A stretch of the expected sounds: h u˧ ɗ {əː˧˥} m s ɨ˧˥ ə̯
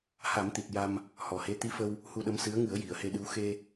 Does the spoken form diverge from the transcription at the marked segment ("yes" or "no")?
yes